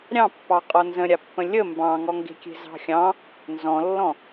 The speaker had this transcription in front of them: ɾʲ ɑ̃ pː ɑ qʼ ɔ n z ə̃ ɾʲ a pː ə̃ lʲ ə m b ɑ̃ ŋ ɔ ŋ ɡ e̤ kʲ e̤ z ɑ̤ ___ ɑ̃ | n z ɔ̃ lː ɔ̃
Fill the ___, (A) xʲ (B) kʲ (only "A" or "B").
A